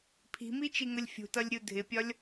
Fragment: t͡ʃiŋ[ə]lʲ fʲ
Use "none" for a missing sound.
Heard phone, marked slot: ə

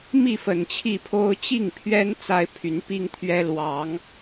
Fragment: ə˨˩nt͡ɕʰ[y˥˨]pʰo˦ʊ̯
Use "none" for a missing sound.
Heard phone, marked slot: i˥˨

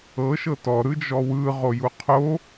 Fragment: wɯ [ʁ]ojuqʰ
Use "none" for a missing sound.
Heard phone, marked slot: ʁ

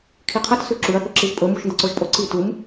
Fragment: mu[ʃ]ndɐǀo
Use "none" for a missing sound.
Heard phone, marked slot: ʃ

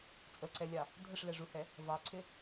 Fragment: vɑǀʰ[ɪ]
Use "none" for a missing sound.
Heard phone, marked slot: ɪ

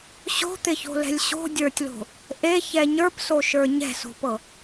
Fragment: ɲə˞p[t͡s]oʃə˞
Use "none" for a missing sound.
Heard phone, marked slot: s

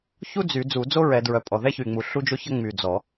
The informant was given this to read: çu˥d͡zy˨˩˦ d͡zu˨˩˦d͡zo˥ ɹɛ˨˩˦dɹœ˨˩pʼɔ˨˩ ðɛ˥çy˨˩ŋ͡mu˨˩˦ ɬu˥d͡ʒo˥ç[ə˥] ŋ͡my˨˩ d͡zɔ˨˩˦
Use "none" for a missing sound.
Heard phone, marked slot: ə˥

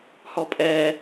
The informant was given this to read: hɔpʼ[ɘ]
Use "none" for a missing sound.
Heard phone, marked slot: ɛ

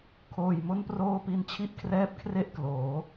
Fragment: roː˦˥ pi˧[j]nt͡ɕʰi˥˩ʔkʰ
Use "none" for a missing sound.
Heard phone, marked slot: none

